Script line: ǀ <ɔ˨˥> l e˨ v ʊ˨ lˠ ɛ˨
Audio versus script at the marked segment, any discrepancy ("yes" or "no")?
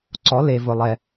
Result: no